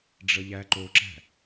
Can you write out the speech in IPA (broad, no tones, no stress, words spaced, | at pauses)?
ɖ͡ʐəʎæǃoǁæ̤